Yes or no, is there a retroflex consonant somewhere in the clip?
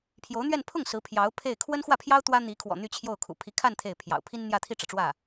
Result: yes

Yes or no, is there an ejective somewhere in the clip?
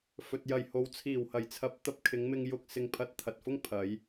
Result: no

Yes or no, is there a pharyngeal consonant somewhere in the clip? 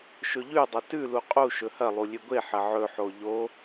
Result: yes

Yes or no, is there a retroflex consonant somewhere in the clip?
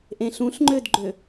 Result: no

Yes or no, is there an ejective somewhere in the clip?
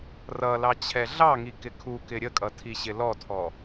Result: yes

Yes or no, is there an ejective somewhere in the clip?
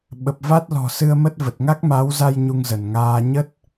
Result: no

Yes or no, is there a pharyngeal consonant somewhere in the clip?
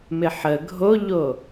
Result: yes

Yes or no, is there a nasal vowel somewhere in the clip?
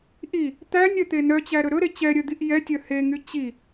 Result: no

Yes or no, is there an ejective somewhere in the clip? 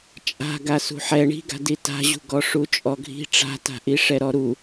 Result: yes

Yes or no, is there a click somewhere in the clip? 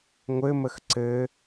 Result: yes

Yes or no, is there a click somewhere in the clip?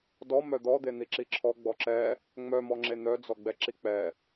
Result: yes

